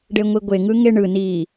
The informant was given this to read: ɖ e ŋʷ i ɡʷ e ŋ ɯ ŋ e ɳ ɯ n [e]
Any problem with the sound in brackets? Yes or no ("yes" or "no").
yes